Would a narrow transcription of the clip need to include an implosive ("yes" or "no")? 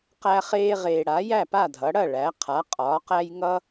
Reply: no